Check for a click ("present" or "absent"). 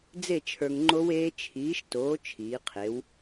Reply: present